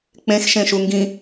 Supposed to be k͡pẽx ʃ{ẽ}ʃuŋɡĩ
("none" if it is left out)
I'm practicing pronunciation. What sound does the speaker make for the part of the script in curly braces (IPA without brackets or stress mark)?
ẽ